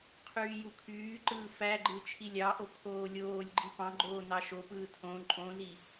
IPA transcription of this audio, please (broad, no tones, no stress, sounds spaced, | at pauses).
qʰ yː j u kʰ yː ǃ ɯː f æ ɡ͡ǃ ɯ t͡ʃʰ i lʲ ɑ ʔ o kʰ oː lʲ oː lʲ ɡ͡ǃ i p ɑ̃ ɡ͡ǃ oː n ɑ ʃ o p ɯː tʰ õ ǃʼ õ z i